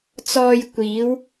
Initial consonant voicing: voiceless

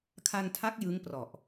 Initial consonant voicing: voiceless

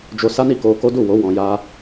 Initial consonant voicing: voiced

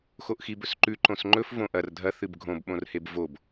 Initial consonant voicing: voiceless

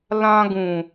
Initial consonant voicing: voiced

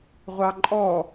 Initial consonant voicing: voiced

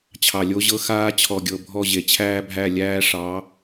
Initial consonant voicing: voiceless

